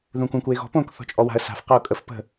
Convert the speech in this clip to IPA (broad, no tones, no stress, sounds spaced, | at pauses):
ð ũː k ũ k u ɪ̯ ɣ ɔ̤ p õː k θ ɔ̤ t͡ʃʼ ɔ w a̤ ə̯ s a̤ f q əː ʊ̯ kʼ ə f p ə̤